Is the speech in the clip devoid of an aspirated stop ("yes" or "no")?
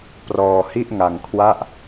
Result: no